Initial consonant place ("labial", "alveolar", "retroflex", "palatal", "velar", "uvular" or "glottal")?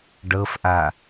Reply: retroflex